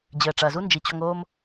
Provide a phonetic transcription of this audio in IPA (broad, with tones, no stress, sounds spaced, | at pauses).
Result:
d͡ʑ ɘː˩ ʈ͡ʂ ɐ˩ z u˥ n d͡ʒ i˩ t͡ɕ ɔ˧ ŋ oː˧ m